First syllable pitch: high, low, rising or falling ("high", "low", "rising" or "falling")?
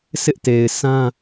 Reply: high